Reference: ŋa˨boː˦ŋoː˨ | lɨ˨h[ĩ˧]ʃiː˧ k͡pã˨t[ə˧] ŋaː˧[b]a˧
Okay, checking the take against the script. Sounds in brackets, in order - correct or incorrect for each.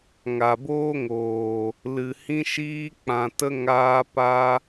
correct, correct, incorrect: p

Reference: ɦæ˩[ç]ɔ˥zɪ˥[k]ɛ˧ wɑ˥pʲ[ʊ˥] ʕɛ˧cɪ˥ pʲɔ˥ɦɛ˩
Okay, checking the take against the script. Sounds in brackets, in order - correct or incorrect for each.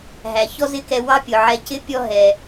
correct, correct, incorrect: ʊ˩

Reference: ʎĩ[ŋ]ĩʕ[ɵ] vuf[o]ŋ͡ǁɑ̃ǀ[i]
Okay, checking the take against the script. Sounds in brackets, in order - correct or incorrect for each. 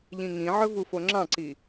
correct, correct, correct, correct

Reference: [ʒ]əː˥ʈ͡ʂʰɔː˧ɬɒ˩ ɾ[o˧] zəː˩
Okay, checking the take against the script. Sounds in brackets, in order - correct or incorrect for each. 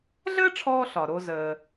incorrect: ɮ, correct

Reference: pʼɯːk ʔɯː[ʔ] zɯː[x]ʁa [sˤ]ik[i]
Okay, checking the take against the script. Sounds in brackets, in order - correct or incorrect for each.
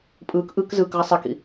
incorrect: k, incorrect: k, correct, incorrect: ḭ

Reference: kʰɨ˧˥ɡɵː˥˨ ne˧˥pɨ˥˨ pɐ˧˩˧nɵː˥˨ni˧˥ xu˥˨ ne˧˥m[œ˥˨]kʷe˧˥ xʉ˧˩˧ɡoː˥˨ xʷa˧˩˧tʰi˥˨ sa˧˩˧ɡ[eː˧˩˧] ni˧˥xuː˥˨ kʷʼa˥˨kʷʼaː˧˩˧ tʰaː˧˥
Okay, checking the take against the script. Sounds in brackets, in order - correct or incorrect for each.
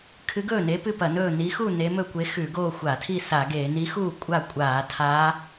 incorrect: ɵ˥˨, correct

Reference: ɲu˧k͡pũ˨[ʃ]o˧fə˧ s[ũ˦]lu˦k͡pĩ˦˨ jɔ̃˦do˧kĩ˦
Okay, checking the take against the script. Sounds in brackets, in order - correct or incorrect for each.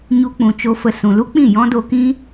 incorrect: t͡ʃ, incorrect: ũ˨

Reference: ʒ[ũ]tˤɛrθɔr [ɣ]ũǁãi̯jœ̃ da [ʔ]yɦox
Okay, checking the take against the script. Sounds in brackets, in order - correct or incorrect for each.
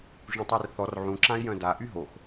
correct, incorrect: ʕ, correct

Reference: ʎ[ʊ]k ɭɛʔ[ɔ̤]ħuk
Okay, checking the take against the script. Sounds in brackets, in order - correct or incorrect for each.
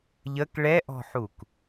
incorrect: ə, correct

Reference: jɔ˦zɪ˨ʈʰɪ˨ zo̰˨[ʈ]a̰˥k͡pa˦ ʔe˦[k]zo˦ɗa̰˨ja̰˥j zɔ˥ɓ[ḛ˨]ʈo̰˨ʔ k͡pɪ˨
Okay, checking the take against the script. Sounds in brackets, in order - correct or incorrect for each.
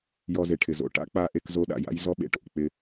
correct, correct, correct

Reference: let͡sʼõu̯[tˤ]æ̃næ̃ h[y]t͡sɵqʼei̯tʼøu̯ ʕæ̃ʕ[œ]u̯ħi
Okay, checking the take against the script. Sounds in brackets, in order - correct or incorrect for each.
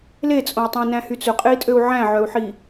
correct, correct, correct

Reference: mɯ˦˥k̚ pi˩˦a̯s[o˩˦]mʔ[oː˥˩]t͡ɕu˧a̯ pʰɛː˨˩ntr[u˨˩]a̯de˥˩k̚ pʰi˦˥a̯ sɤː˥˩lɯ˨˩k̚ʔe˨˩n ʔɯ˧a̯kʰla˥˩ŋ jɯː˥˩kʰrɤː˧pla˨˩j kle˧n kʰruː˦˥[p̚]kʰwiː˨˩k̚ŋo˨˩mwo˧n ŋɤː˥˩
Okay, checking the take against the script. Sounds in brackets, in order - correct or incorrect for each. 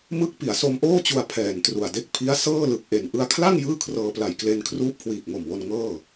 incorrect: o˧, correct, correct, correct

